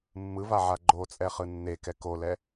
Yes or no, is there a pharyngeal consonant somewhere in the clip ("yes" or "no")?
yes